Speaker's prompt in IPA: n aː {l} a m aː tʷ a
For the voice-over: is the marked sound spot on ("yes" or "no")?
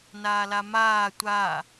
yes